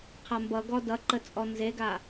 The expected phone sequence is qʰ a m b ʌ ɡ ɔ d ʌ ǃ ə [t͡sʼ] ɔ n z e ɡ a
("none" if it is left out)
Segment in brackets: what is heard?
t͡sʼ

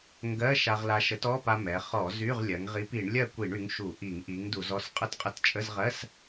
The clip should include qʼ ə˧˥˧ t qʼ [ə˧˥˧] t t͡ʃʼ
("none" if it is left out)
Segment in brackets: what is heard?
ə˨˥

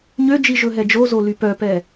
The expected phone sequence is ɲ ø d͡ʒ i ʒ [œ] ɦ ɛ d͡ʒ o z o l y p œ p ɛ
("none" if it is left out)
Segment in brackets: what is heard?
ɵ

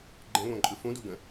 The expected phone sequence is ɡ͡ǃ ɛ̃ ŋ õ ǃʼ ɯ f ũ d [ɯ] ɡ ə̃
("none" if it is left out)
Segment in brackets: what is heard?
u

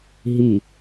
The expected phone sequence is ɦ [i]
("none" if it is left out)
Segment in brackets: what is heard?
i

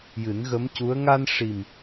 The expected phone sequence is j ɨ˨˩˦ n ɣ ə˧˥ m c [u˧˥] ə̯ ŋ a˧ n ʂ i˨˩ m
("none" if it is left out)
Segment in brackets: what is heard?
u˧˥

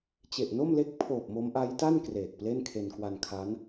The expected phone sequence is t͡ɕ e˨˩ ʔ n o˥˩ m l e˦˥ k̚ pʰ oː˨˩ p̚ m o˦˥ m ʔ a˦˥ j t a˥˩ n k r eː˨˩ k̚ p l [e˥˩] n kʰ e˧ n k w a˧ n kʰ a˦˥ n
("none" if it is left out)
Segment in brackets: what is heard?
e˥˩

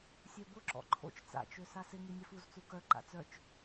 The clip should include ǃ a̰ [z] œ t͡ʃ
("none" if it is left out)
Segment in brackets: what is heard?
t͡s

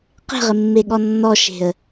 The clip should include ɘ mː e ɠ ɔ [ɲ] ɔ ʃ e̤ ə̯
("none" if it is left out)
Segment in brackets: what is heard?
nː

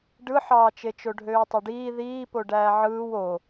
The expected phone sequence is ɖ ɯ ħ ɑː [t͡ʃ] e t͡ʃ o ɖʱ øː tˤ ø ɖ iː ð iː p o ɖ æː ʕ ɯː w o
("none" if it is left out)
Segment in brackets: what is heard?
t͡ʃ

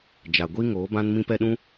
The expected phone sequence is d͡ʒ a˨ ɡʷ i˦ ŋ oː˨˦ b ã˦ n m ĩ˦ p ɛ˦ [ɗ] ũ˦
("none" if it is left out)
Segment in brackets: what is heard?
ɗ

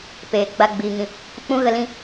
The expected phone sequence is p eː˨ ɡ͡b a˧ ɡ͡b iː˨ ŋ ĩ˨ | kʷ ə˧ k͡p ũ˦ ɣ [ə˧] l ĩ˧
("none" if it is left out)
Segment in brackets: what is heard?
ə˧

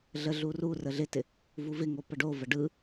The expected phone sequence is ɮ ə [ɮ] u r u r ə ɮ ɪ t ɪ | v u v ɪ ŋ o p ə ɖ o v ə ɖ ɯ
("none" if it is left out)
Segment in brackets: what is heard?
ɮ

